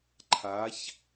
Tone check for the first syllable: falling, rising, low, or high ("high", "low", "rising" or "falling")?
rising